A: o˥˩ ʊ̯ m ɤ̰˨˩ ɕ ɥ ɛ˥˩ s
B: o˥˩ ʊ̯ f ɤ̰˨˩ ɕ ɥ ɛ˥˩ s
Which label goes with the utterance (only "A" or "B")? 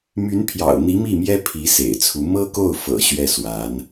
B